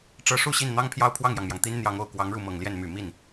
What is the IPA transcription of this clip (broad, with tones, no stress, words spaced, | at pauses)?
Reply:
ʈ͡ʂɤ˧˥ʂu˥˧ ɕi˥˩nn̪ɑ˥ŋpʰjɑ˥˧ʊ̯ pʰwɑ˥˩ŋjɑ˩ŋmjɑ˩ŋ t̪i˥n n̪jɑ˧˥ŋo˨˩ʊ̯kwɑ˧˥ŋ ɻu˥˩mɤ˨˩ŋljɛ˥˩n my˨˩ mi˥˩n